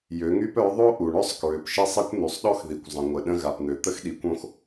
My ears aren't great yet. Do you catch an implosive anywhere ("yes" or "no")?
yes